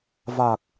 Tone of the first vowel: low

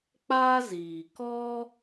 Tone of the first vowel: high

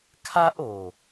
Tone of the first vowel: high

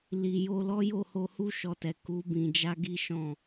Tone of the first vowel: low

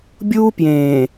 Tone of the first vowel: high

